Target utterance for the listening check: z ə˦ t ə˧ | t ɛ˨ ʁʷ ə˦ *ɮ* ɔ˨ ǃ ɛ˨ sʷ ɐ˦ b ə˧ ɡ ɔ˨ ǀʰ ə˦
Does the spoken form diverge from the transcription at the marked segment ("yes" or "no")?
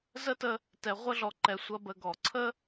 no